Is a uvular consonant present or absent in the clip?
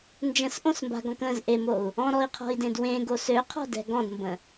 present